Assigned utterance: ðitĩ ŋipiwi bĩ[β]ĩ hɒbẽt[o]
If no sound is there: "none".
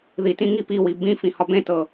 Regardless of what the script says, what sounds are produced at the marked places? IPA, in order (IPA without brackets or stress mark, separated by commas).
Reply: f, ɤ